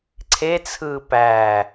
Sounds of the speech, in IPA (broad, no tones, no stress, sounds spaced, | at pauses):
ǀʰ e t͡sʰ ɯː p æː